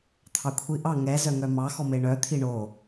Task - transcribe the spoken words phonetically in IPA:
t̪ʰ ɑ kʷʰ i ʔ ɑ ŋ ɛ z œ ŋ œ m ɑ x ɔ m e ɳ œ t̪ʰ i ɳ o

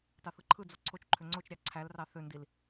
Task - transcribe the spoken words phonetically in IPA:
t ɑ θ ɯ ǃʰ ɯ d͡z o ǀʰ o t͡ʃ ǃʰ ø ŋ͡ǀ o t͡ʃ ɾʲ ɑ ǀʰ æ l r ɑ θ ø n d i l

